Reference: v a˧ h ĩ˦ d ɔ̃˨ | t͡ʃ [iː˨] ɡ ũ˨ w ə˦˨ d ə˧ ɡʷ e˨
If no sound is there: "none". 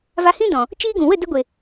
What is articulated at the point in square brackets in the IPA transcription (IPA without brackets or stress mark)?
iː˦